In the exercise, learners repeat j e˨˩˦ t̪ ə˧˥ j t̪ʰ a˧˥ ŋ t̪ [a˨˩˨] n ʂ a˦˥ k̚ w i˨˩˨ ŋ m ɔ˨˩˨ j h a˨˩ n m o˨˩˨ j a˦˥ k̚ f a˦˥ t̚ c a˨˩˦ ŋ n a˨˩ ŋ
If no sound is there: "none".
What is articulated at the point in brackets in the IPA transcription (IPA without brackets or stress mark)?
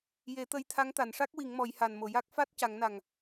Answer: a˨˩˨